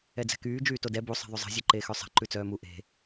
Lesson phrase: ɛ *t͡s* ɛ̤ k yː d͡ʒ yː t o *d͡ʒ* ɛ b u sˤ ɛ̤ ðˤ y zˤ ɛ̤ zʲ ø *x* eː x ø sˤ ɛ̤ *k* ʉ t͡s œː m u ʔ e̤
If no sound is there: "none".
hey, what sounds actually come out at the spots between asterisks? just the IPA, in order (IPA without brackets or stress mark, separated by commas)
d͡z, d, ǃ, ǃ